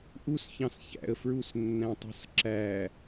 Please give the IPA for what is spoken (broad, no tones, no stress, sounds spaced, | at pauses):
ʔ u s ç ɑ̃ s ç æ̰ ə̯ f ɹ u s nː æ̃ tˤ o̤ s ǁ æ